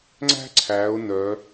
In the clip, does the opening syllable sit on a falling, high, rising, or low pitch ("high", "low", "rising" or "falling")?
high